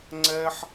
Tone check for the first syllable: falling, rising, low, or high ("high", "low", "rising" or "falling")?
high